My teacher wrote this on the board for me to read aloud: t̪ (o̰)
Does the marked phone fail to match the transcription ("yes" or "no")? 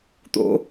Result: no